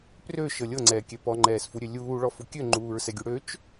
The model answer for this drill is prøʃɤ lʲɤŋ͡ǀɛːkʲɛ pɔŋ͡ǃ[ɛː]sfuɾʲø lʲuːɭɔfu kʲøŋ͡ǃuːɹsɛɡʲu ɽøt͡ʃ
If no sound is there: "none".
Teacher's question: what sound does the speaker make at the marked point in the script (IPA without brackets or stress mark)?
ɛː